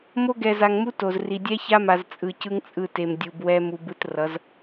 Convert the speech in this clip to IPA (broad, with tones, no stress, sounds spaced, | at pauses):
m o˦ ɡ ɛ˨ z a˨ ŋ m u˦ t o˨ z r i˨ dʲ ɛ˦ ç a˦ m a˨ z t͡sʼ ɯ˨ c ɯ˦ ŋ t͡sʼ ɯ˦˨ t e˨ m dʲ u˨ b w ɛ˦ m u˨ b ɯ˦ t r ʌ˨˦ z